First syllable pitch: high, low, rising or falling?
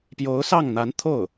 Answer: rising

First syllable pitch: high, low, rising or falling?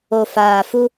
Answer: low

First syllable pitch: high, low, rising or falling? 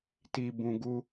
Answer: low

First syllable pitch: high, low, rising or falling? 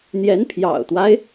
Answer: rising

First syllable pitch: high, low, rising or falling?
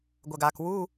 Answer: low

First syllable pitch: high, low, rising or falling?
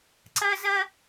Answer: high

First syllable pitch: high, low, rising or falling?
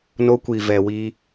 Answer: high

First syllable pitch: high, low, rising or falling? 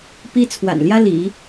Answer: high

